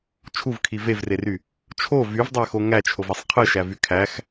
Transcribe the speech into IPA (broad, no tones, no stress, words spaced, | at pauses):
t͡ʃʰuvkʰi vevrery | t͡ʃʰo vyvdˤæxo ŋæt͡ʃʰovesˤ qʰɯʃævy kʰæx